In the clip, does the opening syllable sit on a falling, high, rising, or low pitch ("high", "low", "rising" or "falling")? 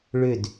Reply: falling